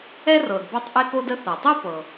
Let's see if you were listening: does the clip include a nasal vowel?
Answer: no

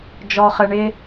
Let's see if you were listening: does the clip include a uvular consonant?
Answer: yes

